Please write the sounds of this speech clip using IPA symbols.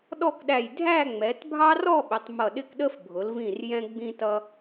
ɗ ɔ˥˧ k ɗ æ˧˩ j dʱ æ˥˧ ŋ͡m ɛ˩˧ t bʱ ɑ˥ r ɔ˥˧ ɓ ɪ˩˧ tˤ m ʌ˧˩ ɗ ɪ˥˧ k ɗ ə˥ f bʱ ʊ˩˧ l v ĩ˧˩ r j ɛ̃˧ ɡ͡b ĩ˧ t ʌ˧

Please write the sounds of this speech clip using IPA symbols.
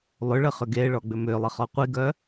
lˠ ʏ ɭ ə χ ʏ ɡ e ɭ ɔ ɡ͡b ʏ m ʏ lˠ ə χ ɔ qʷ i ɡ œ

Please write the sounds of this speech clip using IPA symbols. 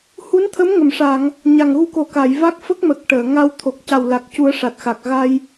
h u˧˥ n t̪ʰ ə˧˥ m ŋ ə˨˩˨ m ʂ a˨˩˨ ŋ | ɲ a˨˩ ŋ ɣ u˧ k o˨˩˦ k a˨˩˨ j v a˦˥ k̚ f ə˦˥ k̚ m ə˨˩ k̚ ʈ əː˨˩˨ ŋ a˧ w t̪ʰ o˨˩ k̚ c a˨˩ w l a˨˩ k̚ c u˨˩˦ ə̯ ʂ a˨˩ t̚ x a˨˩ k̚ ɣ a˧ j

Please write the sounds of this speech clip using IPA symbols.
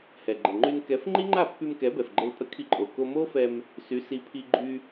h ɛ˩ ɡ͡ǃ ə˩ ŋ͡ǃ y˧ n k ɛ˩˥ f ŋ͡ǃ i˥ ŋ͡ǃ a˥˩ pː y˧ m k ɛ˩˥ b ɛ˩ f ɡ͡ǃ ə˧ l pʼ ə˥ kʰ i˧ ǃʼ o˩ k o˧ m o˥ f ɛ˧ m | s y˩˥ s i˩˥ pʰ i˧ ɡ͡ǃ y˧

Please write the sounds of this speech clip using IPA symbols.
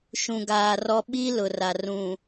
ʃ ũ˨ ɡ aː˨ r ɔ˦ ɓ i˦ l ʊ˨ r a˨ r ũ˨

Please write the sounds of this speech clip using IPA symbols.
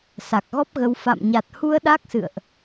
s a˨˩ k̚ ɣ ɔ˦˥ p̚ ɣ ə˧ w f a̰˧˨ m ɲ a˨˩ t̚ h u˧ ə̯ ɗ a˦˥ k̚ s ɨ̰˧˨ ə̯ ʔ

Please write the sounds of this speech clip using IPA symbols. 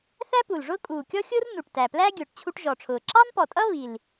θ æ˥ p u˨˩ l ʐ ʊː˥ kʼ uː˨˩ kʲ ɔ˥ xʲ ʊː˥ r n u˨˩ ʈ t æ˨˩ p l æ˥ ɡʲ ʊː˨˩ ʈ t͡ɕʰ u˥ ʈ ʒ ɔ˨˩ ʈ͡ʂʰ ʊː˨˩ ǁ ɑ˥ n p ɔ˨˩ tʼ ʌ˥ β i˨˩ l

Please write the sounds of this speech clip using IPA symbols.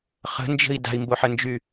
χ ə̤ n d͡ʒ ə̤ i̯ d a̤ i̯ m b o ħ ə n d͡ʒ y

